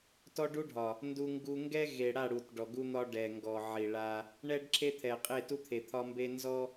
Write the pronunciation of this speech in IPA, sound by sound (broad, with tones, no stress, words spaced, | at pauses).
tɔ˦ɖu˦ɖʱɒ˨ | ndu˦ŋɡu˦ ŋɡɛ˦ ɣe˨ɽa˦˨ɽu˨t ɖɔ˨ɡu˦n̪ɒ˦ ɖɛ˨ŋɡɔ˨ ʕi˨ɭa˦ | ɳɛ˦ɖ ǁʰe˦t̪ʰɛ˨ qʼe˦˨tu˦t̪ʰe˨ t̪ʰɒ˦mbe˦ nzɔ˦